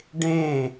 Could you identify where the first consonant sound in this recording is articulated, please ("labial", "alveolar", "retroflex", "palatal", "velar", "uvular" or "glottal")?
retroflex